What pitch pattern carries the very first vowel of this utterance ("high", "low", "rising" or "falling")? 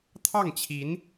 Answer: falling